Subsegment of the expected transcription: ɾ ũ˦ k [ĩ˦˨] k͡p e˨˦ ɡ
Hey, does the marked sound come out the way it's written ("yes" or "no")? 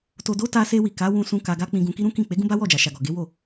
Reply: yes